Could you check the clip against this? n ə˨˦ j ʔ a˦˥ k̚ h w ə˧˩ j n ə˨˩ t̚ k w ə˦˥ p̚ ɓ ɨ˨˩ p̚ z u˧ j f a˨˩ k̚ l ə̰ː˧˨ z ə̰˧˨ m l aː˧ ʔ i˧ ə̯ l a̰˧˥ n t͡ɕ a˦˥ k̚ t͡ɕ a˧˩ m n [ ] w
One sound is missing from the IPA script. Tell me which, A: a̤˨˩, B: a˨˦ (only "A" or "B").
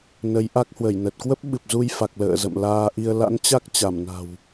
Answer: A